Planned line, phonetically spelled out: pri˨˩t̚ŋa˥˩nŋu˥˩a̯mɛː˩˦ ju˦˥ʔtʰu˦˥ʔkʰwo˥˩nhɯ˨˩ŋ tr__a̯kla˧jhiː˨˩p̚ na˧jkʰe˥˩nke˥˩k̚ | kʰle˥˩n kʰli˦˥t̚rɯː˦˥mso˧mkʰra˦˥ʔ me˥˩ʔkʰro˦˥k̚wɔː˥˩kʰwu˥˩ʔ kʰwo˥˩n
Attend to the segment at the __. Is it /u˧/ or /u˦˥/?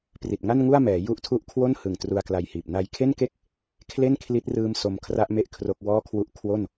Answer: u˧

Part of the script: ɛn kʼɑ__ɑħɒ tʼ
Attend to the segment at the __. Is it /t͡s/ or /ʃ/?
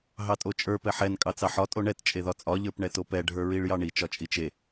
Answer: t͡s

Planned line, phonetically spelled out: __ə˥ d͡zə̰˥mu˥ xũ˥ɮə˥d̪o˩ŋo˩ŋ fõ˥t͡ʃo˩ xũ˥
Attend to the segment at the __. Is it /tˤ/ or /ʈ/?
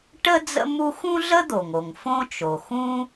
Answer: ʈ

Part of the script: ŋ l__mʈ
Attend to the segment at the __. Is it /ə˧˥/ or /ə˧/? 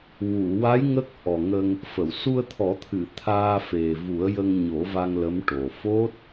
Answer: ə˧˥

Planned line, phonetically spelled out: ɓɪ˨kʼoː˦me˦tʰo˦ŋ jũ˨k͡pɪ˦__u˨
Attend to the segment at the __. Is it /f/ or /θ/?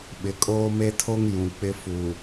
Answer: f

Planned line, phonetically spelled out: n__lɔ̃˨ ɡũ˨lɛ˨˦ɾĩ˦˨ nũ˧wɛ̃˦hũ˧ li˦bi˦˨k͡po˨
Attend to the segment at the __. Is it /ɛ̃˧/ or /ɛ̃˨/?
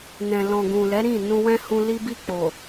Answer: ɛ̃˨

